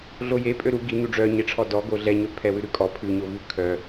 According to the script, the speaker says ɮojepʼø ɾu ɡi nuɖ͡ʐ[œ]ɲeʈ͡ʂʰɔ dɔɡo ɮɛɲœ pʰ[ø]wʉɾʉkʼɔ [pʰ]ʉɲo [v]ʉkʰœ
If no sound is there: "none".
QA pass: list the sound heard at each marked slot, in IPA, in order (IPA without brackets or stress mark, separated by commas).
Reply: œ, ɛ, pʰ, v